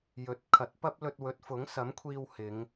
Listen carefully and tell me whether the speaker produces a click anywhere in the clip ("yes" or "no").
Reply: no